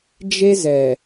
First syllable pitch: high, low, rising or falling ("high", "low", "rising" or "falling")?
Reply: high